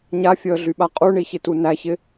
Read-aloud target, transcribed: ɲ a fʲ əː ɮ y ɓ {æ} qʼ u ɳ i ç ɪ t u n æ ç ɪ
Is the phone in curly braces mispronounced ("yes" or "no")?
yes